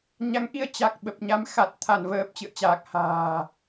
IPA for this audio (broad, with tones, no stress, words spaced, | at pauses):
ɲa˨˦ŋʔi˧ə̯ t͡ɕa˨˩k̚ɓə˨˩p̚ɲa˨˦m xa˨˩t̚ t̪ʰa˧˩nvəː˨˩p̚ t͡ɕɨ̰˧˨ə̯t͡ɕaː˨˩k̚ha̤ː˨˩